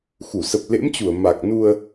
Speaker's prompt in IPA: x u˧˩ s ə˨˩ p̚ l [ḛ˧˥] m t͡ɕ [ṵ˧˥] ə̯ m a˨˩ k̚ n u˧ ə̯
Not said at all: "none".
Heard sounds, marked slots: ḛ˧˥, u˧˩

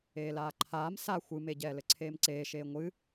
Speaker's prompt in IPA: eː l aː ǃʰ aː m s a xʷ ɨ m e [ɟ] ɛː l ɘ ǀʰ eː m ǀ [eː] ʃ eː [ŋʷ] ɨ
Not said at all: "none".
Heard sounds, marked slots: ɟ, eː, ŋʷ

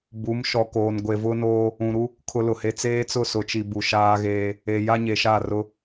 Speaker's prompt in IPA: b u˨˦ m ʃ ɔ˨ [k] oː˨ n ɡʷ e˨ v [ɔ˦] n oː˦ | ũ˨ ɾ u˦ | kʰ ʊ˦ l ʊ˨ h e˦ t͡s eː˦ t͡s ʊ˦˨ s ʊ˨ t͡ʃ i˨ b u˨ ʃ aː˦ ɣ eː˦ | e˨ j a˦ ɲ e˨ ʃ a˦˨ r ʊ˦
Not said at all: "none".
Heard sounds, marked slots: k, ʊ˦

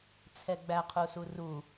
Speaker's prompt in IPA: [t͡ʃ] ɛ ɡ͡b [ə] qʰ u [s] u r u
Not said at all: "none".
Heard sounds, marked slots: t͡sʰ, æ, s

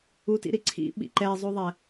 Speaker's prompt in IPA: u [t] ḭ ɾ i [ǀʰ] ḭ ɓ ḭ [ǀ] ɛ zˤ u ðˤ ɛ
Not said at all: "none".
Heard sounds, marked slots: t, ǀʰ, ǃ

